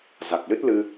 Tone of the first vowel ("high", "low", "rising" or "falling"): low